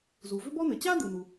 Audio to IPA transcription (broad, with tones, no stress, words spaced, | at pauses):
zu˩vʏ˥ bɔ˥n̪ɘ˩ t͡ɕa˥d̪ɯ˩nu˩